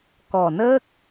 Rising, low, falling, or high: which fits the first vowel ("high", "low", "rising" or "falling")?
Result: low